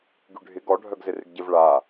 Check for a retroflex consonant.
present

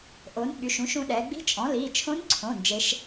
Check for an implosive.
present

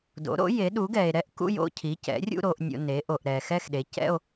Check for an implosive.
present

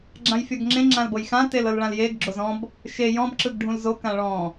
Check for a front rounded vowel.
absent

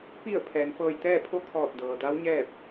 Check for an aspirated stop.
present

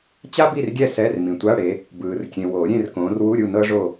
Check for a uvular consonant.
absent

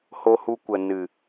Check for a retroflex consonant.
absent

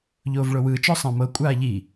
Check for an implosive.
absent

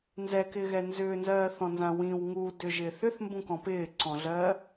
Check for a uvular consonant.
absent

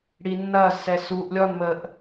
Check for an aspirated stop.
absent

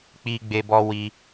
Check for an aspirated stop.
absent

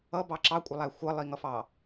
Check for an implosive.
absent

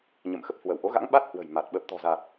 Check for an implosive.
present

